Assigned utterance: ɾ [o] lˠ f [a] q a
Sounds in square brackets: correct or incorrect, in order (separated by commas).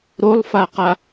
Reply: correct, correct